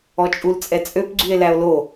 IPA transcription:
ɔt͡ʃʼult͡sʼɛt͡sʼøp ɡ͡ǀye̯læo̯lo

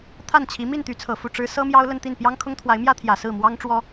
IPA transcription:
t̪ʰa˥˩nt͡ɕʰi˧˥ mi˥˩nt̪y˧˥t͡sʰɤ˨˩ fu˥˩ʈ͡ʂɻ̩˥ sɤ˥mjɑ˥ʊ̯ lə˥˧nt̪i˥˩n pjɑ˥ŋkʰʊ˥ŋt̪ʰwa˧˥ɪ̯mjä˥ t̪ʰjä˨˩sɹ̩˥˩mwɑ˥ŋʈ͡ʂwɔ˥

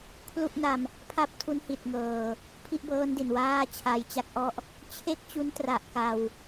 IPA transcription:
kʰlu˥˩ʔna˧m | pʰa˥˩p̚tʰu˦˥nhi˨˩t̚ŋɤː˨˩ | pʰi˥˩ʔbɤː˦˥ndi˨˩n waː˥˩t͡ɕʰa˧jt͡ɕa˦˥k̚ʔɔ˥˩ʔ | t͡ɕʰe˥˩k̚t͡ɕu˦˥ntra˨˩ʔ ka˧w

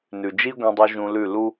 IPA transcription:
nʉ˨d͡ʒi˦ɡʷẽ˧dˤu˧ ʒũ˧lʉ˦˨ lu˦

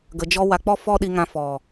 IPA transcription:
ɡə˧d͡ʒɔ˦ wa˧k͡pɔ˦fɔ˦ ɗi˧ŋã˧ fɔ˨

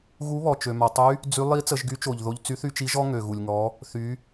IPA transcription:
ɣu˧˥βɔ˩ t͡ʃø˩ma˩tˤy˧˥ | d͡zy˧˥ lˠi˧˥ t͡sə˩˧ʒɡy˧˥t͡ʃo˩ʎðo˧ʎ t͡sy˧˥θy˧t͡ʃi˧˥ʒɔ˥ ŋø˩ɣu˩lʲŋɔ˩˧ | θy˩˧

